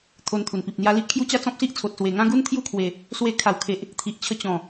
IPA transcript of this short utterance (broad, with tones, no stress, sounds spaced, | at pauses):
t̪ʰ o˧ n t̪ʰ u˨˩ n p i˨ p̚ n̪ j a˧ l i˦ ʔ kʰ j u˦ t͡ɕ a˥˧ t͡s ɔ̃˦ p̚ s i˦ ʔ t͡sʰ o˨ t̚ s w e˨˩ ŋ ã˦ ɡ u˦ n t̪ʰ j u˥˧ kʰ w e˨˩ | s w e˧ kʰ a˨˩ w kʰ e˨ ʔ | t̪ʰ i˨ ʔ t͡ɕʰ ə˧ t͡ɕ ɔ̃˨˩